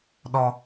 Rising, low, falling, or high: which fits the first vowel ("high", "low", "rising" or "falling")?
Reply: high